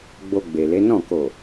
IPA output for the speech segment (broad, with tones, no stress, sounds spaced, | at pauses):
ɡ͡b o˧ ɡ͡b e˨ l e˨˦ n ɔ̃˦˨ k o˨